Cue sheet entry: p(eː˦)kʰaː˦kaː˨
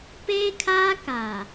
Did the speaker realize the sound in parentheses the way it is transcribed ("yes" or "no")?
yes